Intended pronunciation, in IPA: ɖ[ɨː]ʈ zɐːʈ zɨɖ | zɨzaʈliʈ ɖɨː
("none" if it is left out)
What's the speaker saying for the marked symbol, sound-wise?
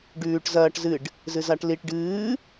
ʉː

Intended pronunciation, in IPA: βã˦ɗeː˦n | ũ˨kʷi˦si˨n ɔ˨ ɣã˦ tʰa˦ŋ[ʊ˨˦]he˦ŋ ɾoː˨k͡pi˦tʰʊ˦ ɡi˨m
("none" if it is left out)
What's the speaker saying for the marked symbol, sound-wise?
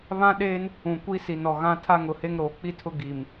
ʊ˨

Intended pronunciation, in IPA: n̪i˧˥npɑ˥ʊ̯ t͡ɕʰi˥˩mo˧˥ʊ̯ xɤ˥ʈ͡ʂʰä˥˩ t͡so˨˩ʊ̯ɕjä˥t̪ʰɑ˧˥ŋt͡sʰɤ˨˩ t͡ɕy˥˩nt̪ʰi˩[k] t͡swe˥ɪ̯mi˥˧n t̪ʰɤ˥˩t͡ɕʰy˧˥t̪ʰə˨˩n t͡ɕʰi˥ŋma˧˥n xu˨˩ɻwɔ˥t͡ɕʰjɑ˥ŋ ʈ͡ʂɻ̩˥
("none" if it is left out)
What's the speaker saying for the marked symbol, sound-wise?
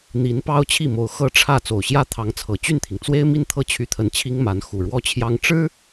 ŋ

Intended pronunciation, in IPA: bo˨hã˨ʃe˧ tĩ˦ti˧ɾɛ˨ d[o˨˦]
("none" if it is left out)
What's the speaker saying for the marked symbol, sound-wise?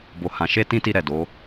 o˨˦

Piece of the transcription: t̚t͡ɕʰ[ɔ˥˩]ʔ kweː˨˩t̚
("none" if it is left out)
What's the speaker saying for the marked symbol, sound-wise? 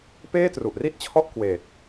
ɔ˥˩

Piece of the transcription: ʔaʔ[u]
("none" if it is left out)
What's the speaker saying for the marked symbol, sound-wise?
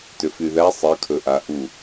u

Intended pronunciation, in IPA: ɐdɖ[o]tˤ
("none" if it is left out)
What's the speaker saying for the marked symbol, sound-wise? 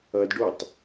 o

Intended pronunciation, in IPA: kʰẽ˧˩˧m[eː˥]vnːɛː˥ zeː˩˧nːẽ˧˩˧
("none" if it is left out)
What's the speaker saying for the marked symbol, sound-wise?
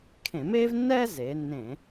eː˥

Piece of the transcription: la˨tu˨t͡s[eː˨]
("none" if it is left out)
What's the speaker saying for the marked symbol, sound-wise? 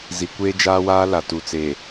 eː˨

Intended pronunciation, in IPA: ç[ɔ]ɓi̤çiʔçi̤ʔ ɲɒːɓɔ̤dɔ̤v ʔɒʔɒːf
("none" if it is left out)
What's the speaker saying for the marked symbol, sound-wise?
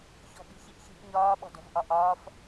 ɔ̤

